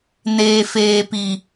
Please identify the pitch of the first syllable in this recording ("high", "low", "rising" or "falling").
low